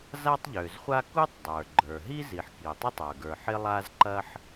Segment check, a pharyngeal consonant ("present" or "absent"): present